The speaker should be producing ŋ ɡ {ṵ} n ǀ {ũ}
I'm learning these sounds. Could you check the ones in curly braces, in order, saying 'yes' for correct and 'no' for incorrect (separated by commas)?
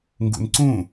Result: yes, yes